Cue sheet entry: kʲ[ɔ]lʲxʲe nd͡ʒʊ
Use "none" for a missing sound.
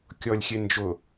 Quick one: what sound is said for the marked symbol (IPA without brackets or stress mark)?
ɔ